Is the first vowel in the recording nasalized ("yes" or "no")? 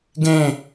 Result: yes